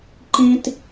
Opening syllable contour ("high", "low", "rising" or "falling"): high